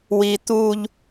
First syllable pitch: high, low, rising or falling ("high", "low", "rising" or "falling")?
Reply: high